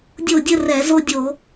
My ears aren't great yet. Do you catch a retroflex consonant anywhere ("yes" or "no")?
no